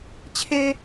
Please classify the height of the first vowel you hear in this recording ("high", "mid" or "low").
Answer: mid